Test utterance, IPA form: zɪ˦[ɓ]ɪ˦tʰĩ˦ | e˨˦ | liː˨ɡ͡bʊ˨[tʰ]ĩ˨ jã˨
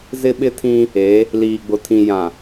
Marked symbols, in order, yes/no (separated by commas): yes, yes